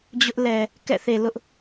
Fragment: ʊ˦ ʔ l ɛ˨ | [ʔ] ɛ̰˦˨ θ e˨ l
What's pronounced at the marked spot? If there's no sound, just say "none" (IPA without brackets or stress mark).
k